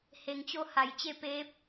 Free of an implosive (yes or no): yes